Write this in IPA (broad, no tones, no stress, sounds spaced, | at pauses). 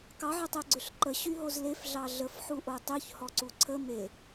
k ɑ ʕ ʏ tˤ e ɡ͡ǀ ʏ ɬ ǃ ə ɕ y ɦ o z l e f ɮ ɑ ɮ ə f ħ u ʔ o tˤ y ç h ɔ ǀ u ǀʰ ə m e